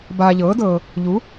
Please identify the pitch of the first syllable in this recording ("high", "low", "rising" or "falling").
low